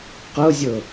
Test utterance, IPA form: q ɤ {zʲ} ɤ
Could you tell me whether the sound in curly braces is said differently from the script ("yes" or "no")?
no